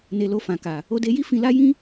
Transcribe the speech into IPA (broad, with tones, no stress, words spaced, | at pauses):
ne˧lo˧fã˨ka˨ | o˧de˧ji˦ fĩ˧la˦ jĩ˦